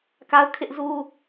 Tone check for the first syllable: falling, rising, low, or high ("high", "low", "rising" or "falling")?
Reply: high